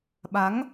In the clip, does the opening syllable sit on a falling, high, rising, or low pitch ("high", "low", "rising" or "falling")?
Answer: rising